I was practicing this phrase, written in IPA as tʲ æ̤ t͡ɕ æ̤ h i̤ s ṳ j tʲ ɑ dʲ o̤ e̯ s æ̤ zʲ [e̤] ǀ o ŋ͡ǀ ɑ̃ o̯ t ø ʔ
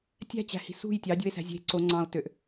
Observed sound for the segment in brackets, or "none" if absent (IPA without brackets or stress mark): e̤